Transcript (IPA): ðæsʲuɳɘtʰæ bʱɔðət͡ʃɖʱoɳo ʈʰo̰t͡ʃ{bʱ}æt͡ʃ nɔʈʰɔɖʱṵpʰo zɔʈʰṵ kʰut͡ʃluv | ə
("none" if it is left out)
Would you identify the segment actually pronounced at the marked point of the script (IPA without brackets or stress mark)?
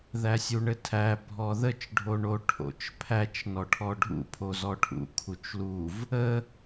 pʰ